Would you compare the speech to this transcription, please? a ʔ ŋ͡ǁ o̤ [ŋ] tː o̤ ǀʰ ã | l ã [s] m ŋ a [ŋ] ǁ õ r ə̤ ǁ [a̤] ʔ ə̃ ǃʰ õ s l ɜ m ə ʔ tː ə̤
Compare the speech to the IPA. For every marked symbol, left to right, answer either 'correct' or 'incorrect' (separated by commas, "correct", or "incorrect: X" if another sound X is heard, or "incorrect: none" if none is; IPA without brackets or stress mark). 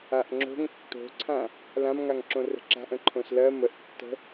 correct, incorrect: none, correct, correct